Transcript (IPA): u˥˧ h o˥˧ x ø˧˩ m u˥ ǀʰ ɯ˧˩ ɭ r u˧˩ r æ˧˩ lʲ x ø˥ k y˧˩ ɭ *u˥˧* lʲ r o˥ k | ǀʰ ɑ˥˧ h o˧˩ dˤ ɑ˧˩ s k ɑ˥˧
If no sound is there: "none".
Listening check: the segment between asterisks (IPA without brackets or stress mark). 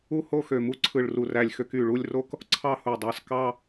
u˥˧